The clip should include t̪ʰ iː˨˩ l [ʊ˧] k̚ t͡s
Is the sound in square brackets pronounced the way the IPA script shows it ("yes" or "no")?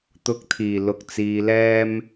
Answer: yes